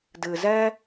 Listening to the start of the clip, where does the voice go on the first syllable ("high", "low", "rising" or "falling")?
low